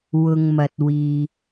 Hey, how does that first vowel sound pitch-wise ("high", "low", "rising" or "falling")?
low